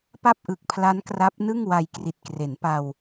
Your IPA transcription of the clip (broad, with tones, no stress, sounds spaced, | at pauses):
p a˥˩ p̚ ʔ ɯ˨˩ k̚ pʰ l a˦˥ n k r a˦˥ p̚ n ɯ˥˩ ŋ w a˧ j k r i˨˩ t̚ k r e˩˦ n p a˧ w